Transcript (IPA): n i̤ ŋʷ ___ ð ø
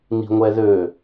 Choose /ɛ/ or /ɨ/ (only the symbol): ɛ